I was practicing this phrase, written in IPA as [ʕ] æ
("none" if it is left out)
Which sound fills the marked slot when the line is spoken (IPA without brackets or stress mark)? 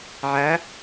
ʕ